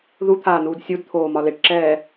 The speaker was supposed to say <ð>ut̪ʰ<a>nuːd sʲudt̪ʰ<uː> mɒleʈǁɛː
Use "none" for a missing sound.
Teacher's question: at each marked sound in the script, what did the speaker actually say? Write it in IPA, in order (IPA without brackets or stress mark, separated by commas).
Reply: ð, aː, oː